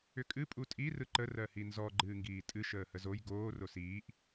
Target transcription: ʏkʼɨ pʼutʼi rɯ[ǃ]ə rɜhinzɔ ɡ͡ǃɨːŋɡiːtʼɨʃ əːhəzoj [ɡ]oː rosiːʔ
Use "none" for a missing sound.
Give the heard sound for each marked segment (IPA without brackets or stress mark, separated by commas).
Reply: ǃ, ɡ